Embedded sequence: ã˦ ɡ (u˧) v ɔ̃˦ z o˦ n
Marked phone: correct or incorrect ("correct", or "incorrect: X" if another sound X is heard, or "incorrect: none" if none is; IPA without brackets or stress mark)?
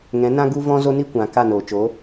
incorrect: u˦